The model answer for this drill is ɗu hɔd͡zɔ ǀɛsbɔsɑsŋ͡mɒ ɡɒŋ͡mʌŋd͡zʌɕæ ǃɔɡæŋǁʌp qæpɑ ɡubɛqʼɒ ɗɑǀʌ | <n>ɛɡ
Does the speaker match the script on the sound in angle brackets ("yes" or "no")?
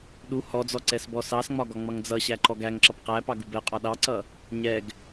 no